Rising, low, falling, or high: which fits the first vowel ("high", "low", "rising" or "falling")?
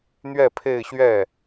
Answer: falling